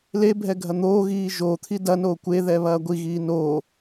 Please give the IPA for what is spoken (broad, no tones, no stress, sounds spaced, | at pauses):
l e bʱ ɛ ɡʱ ɐ n̪ oː ɣ iː ʒ o t̪ʰ i d ɐ n oː kʷ e ð ɛ β ɐː ɡʷ i ɣ iː n oː